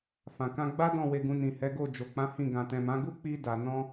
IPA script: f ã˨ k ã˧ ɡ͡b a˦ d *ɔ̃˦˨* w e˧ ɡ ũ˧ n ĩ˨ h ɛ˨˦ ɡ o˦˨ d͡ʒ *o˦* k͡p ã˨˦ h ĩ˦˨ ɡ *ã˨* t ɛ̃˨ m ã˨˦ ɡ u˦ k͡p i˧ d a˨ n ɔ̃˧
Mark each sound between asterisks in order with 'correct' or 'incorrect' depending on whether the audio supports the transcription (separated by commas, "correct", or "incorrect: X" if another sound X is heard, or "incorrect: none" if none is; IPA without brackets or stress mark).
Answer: correct, incorrect: o˨, correct